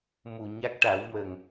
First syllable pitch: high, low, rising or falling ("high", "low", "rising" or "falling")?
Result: low